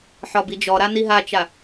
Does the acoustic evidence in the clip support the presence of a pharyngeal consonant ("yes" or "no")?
yes